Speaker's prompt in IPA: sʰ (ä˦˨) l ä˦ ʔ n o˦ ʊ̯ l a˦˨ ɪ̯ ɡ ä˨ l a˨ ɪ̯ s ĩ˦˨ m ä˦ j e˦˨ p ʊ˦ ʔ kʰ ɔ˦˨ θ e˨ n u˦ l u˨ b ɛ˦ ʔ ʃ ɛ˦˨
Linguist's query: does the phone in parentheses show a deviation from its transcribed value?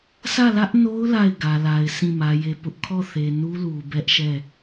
no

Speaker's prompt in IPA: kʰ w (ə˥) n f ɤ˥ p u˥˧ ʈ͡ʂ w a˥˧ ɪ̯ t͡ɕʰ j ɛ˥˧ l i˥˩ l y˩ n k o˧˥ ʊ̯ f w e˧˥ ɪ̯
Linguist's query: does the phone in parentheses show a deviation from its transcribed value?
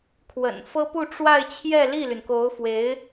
yes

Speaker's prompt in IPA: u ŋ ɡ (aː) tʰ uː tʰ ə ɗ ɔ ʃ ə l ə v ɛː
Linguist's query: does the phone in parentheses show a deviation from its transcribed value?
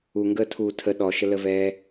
yes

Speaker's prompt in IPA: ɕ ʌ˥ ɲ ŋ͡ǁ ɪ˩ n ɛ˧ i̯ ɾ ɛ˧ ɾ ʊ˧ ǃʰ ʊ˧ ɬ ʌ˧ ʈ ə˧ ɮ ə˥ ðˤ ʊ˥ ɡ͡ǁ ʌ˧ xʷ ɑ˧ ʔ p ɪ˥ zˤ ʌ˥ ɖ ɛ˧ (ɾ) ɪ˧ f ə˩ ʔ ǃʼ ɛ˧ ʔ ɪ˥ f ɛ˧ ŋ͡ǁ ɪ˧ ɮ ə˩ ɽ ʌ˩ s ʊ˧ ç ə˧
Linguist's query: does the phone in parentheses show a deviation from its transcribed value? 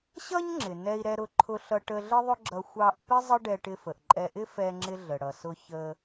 yes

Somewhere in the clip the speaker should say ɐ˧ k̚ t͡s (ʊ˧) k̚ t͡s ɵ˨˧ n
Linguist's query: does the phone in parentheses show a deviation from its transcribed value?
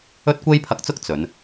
yes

